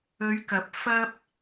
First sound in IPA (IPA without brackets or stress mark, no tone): ɵ